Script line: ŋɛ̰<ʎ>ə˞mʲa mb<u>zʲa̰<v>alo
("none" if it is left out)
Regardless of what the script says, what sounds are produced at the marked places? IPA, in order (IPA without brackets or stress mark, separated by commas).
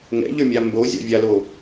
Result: ʎ, o, vʲ